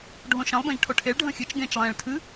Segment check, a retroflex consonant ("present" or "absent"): present